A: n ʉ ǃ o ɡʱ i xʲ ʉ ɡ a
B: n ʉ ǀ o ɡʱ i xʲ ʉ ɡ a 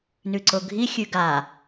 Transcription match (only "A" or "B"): B